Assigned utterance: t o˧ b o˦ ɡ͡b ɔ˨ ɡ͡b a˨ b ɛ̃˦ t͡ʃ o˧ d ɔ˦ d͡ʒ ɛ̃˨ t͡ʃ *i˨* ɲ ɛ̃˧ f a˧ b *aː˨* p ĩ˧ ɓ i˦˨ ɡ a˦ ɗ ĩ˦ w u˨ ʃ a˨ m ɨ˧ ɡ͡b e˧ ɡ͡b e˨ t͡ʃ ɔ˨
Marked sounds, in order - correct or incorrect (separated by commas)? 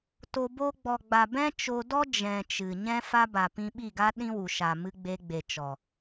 incorrect, incorrect